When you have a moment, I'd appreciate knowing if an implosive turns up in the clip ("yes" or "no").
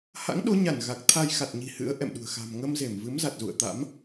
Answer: yes